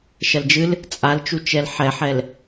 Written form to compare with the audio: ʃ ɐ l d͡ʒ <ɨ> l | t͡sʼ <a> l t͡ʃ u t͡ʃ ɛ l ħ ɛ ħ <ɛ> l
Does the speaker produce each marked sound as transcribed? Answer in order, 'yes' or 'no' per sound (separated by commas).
yes, yes, yes